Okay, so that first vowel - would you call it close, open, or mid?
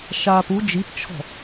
open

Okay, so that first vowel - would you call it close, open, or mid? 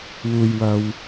close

